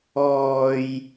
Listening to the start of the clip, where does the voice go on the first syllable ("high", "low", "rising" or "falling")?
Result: low